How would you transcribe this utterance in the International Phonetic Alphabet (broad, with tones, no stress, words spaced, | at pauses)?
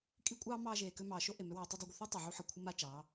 kʼi˦kʷʼɑː˦ mɑː˧ʒeː˨ kø˧mɑː˨ʃo˦ ʔe˨mø˦wɑː˧ tˤu˧dˤa˧ɡʷə˧θo˦ tˤo˨ʕu˧ħə˨ kʷʰə˦ma˦ t͡ʃɑ˨˦